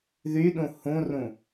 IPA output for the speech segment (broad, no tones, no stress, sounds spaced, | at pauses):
ð y ɗ ũ h ũ r ũ